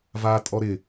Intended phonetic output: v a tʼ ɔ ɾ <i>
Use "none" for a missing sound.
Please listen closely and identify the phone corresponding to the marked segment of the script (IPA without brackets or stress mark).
ɪ